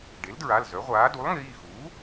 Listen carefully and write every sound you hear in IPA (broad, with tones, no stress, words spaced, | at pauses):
ɖe˩˥ldɹa˩˧˩l zœ˩˥ʁʷaː˩˥ du˩˥lˠŋiː˩˧˩ xuː˩˥